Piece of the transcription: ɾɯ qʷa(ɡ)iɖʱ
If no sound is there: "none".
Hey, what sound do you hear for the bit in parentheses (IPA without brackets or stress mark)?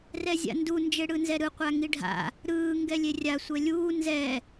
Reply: ŋ